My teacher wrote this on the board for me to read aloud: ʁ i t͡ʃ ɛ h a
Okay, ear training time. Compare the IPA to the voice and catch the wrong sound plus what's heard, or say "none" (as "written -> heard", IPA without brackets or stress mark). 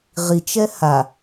none